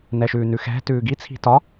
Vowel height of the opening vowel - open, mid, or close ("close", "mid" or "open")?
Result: mid